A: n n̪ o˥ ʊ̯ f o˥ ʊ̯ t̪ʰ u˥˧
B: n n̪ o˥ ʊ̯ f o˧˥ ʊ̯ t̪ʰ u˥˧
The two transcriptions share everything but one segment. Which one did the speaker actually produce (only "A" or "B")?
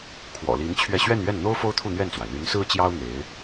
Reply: A